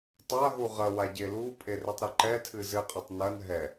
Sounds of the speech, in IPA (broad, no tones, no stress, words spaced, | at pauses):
tˤaɦu ʁɐwa ɟelupʼe retˤɾɨǃɛtʰɨ zɘqʼɛtˤ nɐn ɦɛ